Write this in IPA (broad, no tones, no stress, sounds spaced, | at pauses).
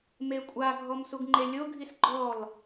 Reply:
m e kʷʼ a ɡʱ ɔ m s u ɡ ŋ͡ǃ e lʲ o ɡʱ i s ɡ͡ǃ ɔ l